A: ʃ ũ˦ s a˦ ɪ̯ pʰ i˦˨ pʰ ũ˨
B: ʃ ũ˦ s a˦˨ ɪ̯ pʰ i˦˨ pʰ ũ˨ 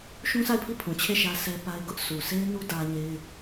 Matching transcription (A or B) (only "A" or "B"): B